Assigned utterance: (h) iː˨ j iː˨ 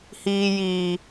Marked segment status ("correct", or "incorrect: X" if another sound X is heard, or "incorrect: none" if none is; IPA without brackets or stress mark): correct